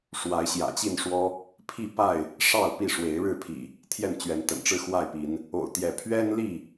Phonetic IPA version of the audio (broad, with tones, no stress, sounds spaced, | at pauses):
ʂ w a˨˦ ɪ̯ ɕ j ä̰˨˩ t͡ɕ i˥˨ n ʂ w ɔ˦ | pʰ i˥˨ p a˥˨ ɪ̯ | ʂ ɑ˥˨ ʊ̯ p i˥˨ ʂ w e˨˦ ɪ̯ ɻ ɻ̩˥˨ pʰ ḭ˨˩ | t̪ʰ j ɛ˥˨ n t͡ɕ ɥ ɛ˨˦ n t̪ ə̰˨˩ n ʈ͡ʂ ɻ̩˥˨ x w a˥˨ ɪ̯ p i˨˦ n | o̰˨˩ ʊ̯ t̪ j ɛ˨˦ pʰ ɥ ɛ˦ n l i˥˨